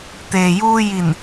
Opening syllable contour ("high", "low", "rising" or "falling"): low